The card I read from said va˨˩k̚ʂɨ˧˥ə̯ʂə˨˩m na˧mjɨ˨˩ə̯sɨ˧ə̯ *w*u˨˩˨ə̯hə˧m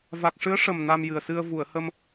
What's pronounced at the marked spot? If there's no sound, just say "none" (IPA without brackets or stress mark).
v